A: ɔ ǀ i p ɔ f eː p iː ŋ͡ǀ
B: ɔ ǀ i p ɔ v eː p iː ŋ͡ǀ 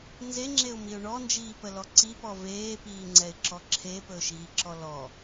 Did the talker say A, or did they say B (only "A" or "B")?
B